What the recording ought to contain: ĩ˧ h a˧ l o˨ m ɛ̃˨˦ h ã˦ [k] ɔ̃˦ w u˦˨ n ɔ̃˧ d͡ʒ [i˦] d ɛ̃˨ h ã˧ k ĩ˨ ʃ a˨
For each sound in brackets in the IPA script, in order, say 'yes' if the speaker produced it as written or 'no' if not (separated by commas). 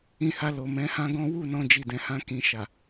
no, no